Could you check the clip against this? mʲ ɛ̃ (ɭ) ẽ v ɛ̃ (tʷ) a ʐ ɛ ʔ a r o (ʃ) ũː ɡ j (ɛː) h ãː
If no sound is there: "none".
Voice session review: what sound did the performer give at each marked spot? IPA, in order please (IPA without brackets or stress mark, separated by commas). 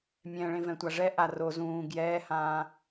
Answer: ɭ, tʷ, z, ɛː